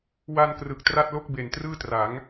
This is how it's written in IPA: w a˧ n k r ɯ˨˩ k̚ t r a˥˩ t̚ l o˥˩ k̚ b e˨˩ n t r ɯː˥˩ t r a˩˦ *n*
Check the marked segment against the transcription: incorrect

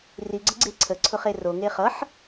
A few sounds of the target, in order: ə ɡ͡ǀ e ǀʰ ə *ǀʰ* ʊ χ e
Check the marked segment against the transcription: correct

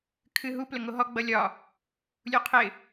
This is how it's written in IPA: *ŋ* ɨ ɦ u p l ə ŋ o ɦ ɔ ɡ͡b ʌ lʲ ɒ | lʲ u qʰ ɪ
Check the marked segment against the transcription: incorrect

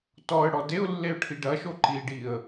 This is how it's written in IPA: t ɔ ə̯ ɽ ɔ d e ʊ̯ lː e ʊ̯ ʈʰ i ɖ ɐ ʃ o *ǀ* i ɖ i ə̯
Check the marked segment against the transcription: incorrect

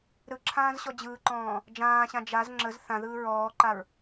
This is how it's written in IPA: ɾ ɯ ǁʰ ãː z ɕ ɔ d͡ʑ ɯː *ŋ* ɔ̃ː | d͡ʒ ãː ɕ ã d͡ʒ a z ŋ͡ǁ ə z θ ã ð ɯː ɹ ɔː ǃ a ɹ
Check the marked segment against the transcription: incorrect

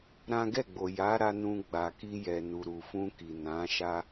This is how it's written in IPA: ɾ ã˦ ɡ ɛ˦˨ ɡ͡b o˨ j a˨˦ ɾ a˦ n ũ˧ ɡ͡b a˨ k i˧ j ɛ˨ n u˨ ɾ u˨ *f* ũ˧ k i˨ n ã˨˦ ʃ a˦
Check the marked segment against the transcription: correct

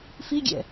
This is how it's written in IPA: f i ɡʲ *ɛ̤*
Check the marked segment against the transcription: incorrect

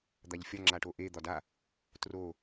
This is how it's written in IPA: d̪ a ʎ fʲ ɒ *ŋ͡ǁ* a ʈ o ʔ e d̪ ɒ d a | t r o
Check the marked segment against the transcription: correct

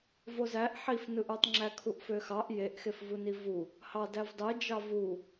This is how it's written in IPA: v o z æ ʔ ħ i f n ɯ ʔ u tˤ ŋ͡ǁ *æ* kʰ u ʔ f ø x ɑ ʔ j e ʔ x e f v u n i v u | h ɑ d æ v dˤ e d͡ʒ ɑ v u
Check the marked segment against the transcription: correct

